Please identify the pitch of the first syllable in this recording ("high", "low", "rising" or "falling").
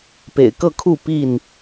low